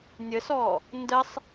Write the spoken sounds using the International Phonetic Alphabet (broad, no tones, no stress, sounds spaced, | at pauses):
nʲ ə s ɔ | n d ə sˤ